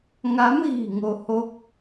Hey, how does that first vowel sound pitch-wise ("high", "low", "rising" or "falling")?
rising